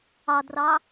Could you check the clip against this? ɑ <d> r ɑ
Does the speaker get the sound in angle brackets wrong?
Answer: no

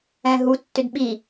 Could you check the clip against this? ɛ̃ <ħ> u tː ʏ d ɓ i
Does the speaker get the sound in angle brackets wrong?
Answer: yes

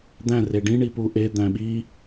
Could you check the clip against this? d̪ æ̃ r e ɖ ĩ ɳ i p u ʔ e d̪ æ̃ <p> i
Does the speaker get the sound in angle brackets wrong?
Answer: yes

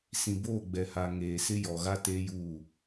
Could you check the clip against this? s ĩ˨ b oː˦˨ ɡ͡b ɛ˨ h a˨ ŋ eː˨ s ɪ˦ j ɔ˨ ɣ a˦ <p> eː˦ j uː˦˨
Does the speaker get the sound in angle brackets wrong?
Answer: yes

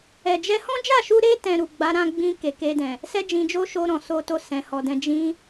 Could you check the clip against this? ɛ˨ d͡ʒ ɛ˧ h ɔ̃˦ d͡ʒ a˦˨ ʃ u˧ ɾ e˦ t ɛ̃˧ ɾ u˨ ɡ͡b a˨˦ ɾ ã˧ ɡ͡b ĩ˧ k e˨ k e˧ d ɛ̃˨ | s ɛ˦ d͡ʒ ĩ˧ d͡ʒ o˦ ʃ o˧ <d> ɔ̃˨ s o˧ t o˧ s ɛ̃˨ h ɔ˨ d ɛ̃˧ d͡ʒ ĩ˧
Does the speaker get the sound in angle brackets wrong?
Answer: yes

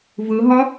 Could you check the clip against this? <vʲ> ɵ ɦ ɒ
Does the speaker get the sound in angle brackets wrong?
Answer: yes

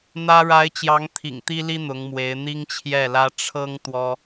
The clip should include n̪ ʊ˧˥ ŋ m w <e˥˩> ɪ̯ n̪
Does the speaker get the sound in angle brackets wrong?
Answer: yes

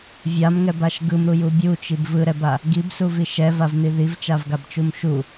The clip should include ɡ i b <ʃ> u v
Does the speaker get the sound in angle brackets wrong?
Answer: yes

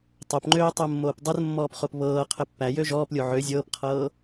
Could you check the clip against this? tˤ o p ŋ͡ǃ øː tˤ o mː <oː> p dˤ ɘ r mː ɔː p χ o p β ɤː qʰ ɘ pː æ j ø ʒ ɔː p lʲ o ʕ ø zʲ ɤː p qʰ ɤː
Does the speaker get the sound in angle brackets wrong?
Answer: no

